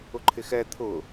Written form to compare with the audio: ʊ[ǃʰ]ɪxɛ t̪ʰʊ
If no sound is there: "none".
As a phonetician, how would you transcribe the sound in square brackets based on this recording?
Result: ǃʰ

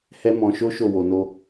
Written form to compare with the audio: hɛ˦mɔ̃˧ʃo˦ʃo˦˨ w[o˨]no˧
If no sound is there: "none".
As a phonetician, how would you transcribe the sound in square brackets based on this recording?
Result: o˨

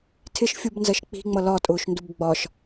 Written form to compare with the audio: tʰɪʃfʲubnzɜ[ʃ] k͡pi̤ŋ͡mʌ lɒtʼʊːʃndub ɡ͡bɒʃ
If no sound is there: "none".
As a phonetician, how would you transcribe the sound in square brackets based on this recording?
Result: ʃ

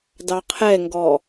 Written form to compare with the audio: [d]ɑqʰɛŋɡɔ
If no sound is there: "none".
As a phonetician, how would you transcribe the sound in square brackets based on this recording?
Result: d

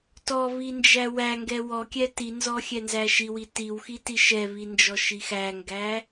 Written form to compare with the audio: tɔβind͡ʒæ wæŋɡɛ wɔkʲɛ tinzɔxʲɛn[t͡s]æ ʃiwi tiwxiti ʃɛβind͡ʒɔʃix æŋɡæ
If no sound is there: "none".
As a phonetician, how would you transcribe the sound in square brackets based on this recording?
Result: z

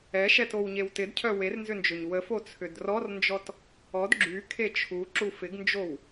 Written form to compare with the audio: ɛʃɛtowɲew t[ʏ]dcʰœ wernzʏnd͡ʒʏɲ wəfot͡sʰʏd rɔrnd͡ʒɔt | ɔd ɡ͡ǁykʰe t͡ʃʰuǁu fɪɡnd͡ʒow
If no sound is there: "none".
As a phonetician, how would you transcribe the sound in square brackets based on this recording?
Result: ɪ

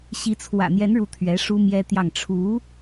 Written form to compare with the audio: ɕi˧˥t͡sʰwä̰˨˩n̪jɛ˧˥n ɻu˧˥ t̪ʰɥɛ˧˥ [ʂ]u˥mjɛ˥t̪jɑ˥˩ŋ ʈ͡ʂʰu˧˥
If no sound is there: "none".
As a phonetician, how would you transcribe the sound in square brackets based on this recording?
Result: ʂ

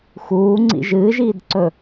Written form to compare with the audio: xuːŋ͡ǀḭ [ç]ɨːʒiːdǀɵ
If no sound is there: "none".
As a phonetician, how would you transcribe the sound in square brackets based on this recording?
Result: ʒ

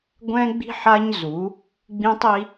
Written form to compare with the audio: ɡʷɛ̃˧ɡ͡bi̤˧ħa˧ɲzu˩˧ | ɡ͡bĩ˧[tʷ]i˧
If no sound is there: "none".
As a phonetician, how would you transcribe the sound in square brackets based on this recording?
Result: tˤ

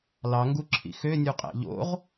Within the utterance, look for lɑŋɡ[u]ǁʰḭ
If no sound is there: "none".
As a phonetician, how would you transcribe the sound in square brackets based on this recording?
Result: u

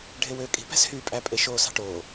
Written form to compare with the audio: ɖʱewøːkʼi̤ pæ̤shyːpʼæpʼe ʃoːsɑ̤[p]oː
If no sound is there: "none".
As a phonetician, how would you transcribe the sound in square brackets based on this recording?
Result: ʈ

